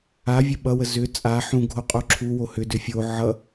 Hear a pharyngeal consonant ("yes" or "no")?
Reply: yes